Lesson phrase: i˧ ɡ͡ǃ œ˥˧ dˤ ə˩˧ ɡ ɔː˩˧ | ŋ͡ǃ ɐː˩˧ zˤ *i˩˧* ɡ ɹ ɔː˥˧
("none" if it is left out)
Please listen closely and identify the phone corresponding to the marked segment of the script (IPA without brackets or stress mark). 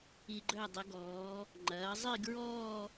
i˥˧